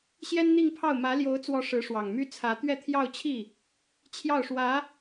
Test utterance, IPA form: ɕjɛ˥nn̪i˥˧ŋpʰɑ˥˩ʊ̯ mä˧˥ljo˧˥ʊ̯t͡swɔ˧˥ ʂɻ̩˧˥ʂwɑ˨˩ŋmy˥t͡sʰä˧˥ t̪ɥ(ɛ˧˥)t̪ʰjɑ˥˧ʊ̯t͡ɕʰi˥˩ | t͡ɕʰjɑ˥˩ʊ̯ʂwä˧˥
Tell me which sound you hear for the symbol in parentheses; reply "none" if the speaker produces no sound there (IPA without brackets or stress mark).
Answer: ɛ˥˧